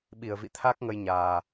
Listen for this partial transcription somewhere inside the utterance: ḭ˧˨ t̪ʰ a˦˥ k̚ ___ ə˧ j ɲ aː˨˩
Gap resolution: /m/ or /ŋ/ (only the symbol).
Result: ŋ